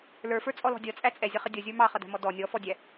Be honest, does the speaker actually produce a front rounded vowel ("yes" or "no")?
no